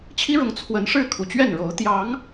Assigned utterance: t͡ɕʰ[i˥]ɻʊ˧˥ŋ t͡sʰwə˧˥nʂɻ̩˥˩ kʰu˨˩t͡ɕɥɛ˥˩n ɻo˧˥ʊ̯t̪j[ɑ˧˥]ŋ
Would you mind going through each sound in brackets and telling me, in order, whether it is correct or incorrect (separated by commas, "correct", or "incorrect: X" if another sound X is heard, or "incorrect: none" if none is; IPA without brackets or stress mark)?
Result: correct, correct